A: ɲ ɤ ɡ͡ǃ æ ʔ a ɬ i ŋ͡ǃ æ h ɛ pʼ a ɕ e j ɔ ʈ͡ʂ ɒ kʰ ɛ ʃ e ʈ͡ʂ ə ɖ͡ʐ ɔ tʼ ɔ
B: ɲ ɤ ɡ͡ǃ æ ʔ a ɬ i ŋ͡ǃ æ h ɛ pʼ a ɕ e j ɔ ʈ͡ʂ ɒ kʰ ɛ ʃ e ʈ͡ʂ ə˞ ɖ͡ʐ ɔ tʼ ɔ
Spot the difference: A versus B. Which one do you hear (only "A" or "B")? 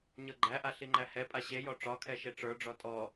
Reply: B